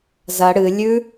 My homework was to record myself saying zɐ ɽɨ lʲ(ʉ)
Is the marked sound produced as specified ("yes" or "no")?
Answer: yes